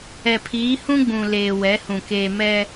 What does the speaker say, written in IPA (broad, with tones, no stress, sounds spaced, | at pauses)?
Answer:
ɛ˨ pʰ iː˨˦ h ũ˦ ɡ͡b ũ˨ l eː˨ w ɛ˨˦ h ũ˨ k eː˨ m ɛ˦